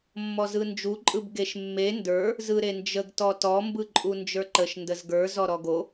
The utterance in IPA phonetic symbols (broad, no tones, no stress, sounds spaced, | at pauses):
mː ɔ z ɯ n d͡ʒ u ǃʼ ɯ b ɡ e ʃ mː e n d ə˞ | z ɯ ɾ e n d͡ʒ ə ɡ t ɔ t ɔ m b ɯ ǃʼ u n d͡ʒ ə˞ ǃ ə ʃ n d ə z ɡ ə˞ z ɔ ɾ ɔ ɡ o